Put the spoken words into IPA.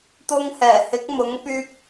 t̪ʊ˧ŋhɛː˨˩ hɪ˨˥k̚mʊ˨˥ŋpyː˧p̚

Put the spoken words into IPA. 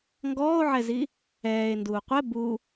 ŋɡɔːo̯ʕɛzi | ɛːe̯nduː qʷɛ bu

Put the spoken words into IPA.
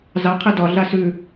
zɑ qʰɛdɒɮa sʉ

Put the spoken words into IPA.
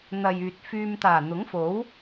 n̪ɐ˨jyː˨t̚fyː˧m t̪aː˨˩ n̪ʊ˨˥ŋfo˨˥w

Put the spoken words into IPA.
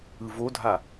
ɯvodʱa

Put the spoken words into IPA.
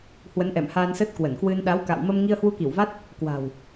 hwə˨˦nʔɛ̰˧˨m haː˧nsə˦˥t̚kwə˧˩nkwɨ˧n ɗa˨˦wka̰˧˨wmə˧m ŋi˧ə̯hwu˧ki˧˩wva˦˥t̚ | kwa̤˨˩w

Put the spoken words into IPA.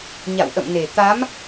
ɲa̰˧˨wʔə̰˧˨mne˨˩ t̪a˨˦m

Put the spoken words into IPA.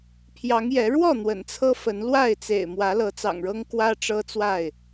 pʰjɑ˨˦ŋjɛ˨˦ ɻwɔ˥˨ n̪wə̰˨˩nt͡sʰɤ˦fə˨˦n lwa˥˨ɪ̯t͡sḛ˨˩ɪ̯ mwä˨˦lɤ˨˦ t͡sɑ̰˨˩ŋɻɤ˦ŋ kwä˦ʈ͡ʂɤ˦t͡swa˥˨ɪ̯

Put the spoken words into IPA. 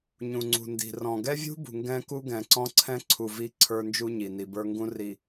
ɲũ˨ŋ͡ǀṳ˨ndi̤˨rɔ̃˨ ɡɛ˦vʲṳ˦ bṳ˨ŋɡɛ̃˦ku˦ ɡɛ̃˨ǀɔ̃˦ǀʰɛ̃˦ǀʰu˨ vi˦ǀʰə˞˦nd͡ʒu˦ ɲi˨ni˨bə˞˦ ŋɡũ˦ri˨

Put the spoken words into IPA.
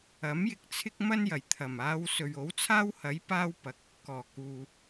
ɐ˨˥mjɪ˧k̚ t͡sʰɪ˥k̚mɐ˥njɐ˨˩j t̪ʰɐ˨˩maː˧w sɵ˨ɥo˨˥wt͡sʰaː˥whɐ˨˥j paː˥wpɐ˨k̚ | kɔː˨˩ kuː˨

